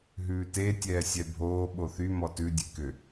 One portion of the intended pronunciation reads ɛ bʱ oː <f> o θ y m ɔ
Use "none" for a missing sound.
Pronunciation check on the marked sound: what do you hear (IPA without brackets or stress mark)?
ɓ